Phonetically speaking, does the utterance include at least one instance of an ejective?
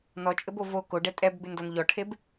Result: yes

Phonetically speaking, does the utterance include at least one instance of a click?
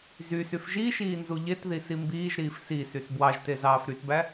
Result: no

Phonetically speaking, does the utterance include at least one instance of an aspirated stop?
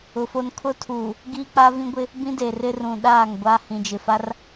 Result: yes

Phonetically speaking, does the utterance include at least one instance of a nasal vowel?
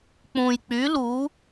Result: yes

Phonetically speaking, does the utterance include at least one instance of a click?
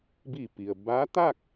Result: no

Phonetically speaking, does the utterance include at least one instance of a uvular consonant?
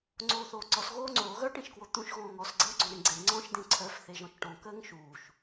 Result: no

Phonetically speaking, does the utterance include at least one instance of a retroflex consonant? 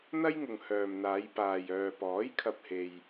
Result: no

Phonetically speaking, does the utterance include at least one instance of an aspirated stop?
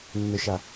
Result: no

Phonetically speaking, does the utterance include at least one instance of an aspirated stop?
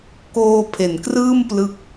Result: yes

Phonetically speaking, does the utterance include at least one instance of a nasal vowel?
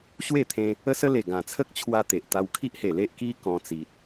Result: yes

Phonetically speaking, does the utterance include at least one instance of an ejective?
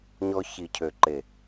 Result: no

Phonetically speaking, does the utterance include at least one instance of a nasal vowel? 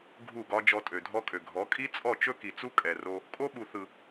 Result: no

